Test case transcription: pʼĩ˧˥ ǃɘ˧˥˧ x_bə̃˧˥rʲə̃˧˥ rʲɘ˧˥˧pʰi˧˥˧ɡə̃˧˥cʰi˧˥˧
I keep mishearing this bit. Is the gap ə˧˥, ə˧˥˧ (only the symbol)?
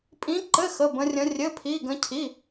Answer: ə˧˥˧